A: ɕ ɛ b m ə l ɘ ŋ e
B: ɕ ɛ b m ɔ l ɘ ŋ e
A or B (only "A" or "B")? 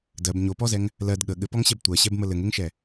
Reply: A